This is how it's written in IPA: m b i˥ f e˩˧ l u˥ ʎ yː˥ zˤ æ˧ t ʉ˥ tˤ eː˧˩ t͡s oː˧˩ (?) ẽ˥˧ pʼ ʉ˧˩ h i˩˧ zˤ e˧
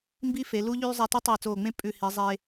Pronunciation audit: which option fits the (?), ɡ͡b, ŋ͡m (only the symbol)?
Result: ŋ͡m